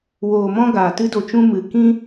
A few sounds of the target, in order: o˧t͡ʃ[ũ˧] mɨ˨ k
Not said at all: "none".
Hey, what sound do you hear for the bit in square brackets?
ũ˦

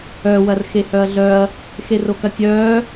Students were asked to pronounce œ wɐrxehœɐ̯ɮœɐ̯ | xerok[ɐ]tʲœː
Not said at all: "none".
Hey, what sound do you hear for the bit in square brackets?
ɐ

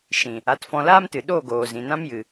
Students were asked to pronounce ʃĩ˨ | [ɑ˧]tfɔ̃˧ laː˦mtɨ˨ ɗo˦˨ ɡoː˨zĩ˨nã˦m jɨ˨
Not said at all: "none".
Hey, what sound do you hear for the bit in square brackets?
a˧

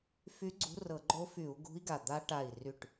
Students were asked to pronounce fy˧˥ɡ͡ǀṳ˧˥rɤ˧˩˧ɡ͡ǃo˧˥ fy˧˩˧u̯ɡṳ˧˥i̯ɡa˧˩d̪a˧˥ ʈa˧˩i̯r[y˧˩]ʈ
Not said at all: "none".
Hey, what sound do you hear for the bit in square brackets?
y˧˩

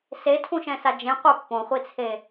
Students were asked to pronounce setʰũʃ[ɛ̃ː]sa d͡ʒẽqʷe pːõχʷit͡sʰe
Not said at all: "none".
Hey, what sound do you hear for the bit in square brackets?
ɛ̃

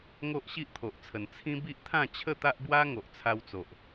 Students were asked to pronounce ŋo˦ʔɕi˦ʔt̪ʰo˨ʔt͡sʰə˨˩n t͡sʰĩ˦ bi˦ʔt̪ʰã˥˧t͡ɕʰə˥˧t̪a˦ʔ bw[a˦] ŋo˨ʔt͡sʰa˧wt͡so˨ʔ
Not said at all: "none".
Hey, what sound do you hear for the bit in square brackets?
a˦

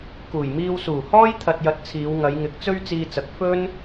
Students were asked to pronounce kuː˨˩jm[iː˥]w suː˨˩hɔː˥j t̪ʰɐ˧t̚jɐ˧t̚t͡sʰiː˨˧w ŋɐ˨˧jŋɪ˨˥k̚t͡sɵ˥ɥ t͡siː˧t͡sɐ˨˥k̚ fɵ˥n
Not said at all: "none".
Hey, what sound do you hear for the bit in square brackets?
iː˧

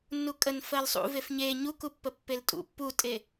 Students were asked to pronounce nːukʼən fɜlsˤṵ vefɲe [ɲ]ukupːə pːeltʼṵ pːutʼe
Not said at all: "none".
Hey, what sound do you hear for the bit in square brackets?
ɲ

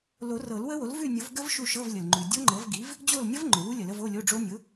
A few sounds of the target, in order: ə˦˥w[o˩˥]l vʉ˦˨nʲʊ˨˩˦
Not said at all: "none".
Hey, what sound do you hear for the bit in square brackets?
o˩˥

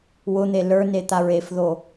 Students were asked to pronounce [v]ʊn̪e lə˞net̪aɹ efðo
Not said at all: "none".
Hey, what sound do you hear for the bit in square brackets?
w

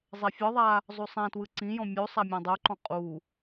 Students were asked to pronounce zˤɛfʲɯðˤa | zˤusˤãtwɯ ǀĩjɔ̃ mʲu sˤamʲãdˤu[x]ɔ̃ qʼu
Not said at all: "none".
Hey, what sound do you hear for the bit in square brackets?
ǃ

